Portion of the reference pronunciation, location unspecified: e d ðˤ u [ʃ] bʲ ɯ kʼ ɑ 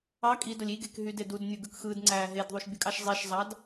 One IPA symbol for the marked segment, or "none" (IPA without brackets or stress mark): ʃ